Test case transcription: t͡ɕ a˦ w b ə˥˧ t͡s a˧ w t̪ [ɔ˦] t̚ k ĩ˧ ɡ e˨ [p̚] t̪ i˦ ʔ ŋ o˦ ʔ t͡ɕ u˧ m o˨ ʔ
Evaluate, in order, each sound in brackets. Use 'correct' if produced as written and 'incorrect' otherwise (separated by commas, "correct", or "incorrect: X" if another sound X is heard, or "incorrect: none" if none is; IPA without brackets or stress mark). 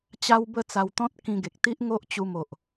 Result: incorrect: ɔ̃˦, incorrect: k̚